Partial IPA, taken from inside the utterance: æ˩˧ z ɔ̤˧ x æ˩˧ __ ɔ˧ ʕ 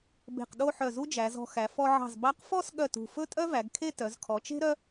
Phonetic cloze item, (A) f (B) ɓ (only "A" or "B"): A